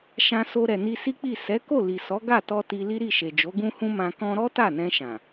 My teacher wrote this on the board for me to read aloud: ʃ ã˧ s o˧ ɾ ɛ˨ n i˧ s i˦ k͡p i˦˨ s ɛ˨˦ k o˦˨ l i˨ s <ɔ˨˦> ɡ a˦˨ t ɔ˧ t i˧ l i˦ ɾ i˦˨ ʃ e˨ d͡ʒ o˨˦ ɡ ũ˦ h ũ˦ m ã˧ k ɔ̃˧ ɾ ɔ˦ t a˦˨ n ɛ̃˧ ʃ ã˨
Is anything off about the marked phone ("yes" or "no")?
no